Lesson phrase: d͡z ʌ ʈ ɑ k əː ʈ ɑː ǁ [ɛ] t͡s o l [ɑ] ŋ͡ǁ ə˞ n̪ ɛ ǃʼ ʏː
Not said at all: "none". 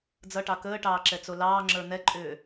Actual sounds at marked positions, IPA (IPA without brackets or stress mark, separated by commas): ɛ, ɑː